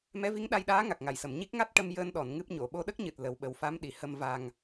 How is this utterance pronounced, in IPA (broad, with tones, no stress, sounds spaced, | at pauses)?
m ɛ˧˥ v i˧˥ ŋ ɗ a˧ j ɗ aː˧˥ ŋ a˨˩ k̚ ŋ a˨˩˨ j s ə˨˩˨ m ɲ i˦˥ k̚ ŋ a˦˥ t̚ ʈ ə˧ m j əː˧ n ɗ ɔ˨˩˨ n ŋ ɨ˦˥ p̚ ɲ o˨˩˨ ɓ o˧ ɗ ə˦˥ k̚ ɲ ɨ˨˩ t̚ l ə˨˩˦ w ɓ ə˨˩ w f a˧˥ m ɗ i˨˩˨ h ə˨˩ m v a˨˩ ŋ